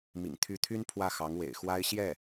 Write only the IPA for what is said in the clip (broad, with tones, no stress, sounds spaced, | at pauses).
m ḭ˨˩ ŋ t̪ʰ y˧˥ t̪ʰ y˥ n pʰ w ä˥˩ x ɑ˧˥ ŋ w ḛ˨˩ ɪ̯ x w a˥ ɪ̯ ɕ j ɛ˥˩